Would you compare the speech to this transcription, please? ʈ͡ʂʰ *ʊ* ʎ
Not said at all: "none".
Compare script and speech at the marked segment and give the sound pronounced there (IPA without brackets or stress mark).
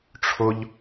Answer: ʊ